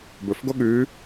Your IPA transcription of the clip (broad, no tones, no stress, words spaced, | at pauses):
bɵfɡo ɠʉː